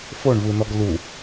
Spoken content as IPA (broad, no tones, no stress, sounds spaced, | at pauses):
f o ɳ v ɯ n ɔ ɡ l u